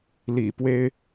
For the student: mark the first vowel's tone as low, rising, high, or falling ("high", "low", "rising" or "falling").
low